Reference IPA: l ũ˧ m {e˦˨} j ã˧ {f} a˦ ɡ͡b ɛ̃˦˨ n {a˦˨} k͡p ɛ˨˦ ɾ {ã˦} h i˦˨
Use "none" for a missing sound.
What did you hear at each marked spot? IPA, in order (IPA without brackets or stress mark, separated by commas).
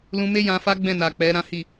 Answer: e˦, f, a˨, ã˦